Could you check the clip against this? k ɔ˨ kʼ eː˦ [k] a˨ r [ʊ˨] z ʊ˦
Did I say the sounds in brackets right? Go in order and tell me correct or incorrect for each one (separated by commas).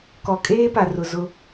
incorrect, correct